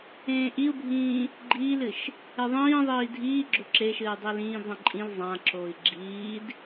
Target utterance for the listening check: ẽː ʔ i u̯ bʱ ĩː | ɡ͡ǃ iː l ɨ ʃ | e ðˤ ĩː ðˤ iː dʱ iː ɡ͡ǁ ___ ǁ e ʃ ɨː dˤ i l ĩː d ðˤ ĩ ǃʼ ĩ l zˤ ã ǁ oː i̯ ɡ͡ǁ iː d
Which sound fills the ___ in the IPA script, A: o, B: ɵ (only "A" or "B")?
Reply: B